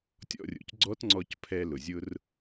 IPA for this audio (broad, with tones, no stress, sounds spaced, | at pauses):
tʲ ɔ̰˧ rʲ o̰˩ c ɡ͡ǀ ɔ˦˥ t ŋ͡ǀ ɔ˧ c pʰ ɛ˧ l ʊ˩ zʲ ʊ˧ r